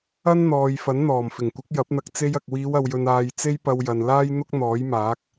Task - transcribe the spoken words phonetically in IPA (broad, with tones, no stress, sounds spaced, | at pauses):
ɐ˥ n n̪ ɔː˨ j f ɐ˨˥ n n̪ ɔː˨˩ m f ɪ˨˩ ŋ kʷ ɪ˨˥ k̚ j ɐ˨˥ p̚ n̪ ɐ˧ k̚ t͡s e˥ j ɐ˧ k̚ w iː˨˧ w ɐ˨ w j ɵ˨ n aː˨ j t͡s e˥ j p ɐ˧ w j ɐ˨ n l aː˥ j n̪ ʊ˥ k̚ n̪ ɔː˨˥ j m aː˨˥ k̚